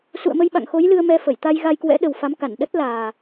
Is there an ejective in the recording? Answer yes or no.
no